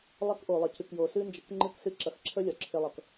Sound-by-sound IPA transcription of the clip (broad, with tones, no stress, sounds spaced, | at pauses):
lˠ ɐ˦ k ʔ o˨ lˠ ə˨ c ɨ˨ k j o˨ s ɨ˦ n d͡ʒ ə˧ k ŋ͡ǃ ɨ˦˨ k s ɨ˦ ǁ ɐ˨˦ x ǁʰ ə˦ lʲ ɒ˨ ǁʰ e˧ lˠ ʌ˨ k